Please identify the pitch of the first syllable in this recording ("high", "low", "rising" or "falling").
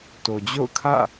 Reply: low